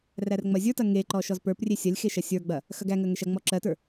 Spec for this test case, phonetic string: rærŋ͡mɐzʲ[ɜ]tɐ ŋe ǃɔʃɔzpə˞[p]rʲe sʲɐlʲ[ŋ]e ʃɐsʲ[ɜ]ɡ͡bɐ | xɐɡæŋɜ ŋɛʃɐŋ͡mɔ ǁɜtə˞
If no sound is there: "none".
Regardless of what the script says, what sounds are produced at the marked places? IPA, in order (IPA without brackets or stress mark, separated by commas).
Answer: ə˞, p, x, ə˞